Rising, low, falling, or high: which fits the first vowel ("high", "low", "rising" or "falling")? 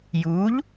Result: rising